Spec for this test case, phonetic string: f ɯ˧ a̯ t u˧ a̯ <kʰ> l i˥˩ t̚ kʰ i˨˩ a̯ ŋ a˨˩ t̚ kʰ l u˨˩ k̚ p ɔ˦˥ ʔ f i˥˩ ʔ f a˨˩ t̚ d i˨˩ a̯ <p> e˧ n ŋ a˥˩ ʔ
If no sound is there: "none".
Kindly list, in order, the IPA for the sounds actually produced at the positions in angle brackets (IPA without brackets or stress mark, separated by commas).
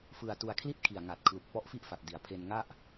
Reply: kʰ, pʰ